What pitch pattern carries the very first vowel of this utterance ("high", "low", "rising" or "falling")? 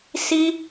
high